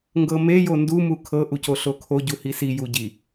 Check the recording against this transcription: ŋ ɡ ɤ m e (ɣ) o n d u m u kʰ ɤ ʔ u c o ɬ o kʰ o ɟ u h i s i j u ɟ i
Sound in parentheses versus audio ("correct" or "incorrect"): incorrect